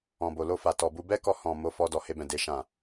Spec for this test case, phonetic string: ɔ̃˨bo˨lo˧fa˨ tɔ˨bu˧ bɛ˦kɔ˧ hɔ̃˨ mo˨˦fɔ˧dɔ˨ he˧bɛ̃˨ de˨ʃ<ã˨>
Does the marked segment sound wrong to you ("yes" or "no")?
no